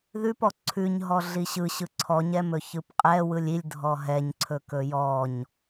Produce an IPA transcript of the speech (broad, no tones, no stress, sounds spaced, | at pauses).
ð ʉ p ɔ ǀʰ ʉ ɲ ɦ ɔ ɮ i ɕ ɯ ɕ ɯ ǀʰ ɔ ɲ ɛ m ɵ ç ɯ p qʼ ɛ w ɯ lʲ i lʲ dʱ ɔ ɦ ɛ ɲ ǀʰ ɵ k ɵ j ɔ ɲ